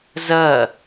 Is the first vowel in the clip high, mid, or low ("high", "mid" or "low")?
low